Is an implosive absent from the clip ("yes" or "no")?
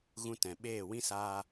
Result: no